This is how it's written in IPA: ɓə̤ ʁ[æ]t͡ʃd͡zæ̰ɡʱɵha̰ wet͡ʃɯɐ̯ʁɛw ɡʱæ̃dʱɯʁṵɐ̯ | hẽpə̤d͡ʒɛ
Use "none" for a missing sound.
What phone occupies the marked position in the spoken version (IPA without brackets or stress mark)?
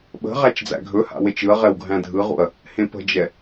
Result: æ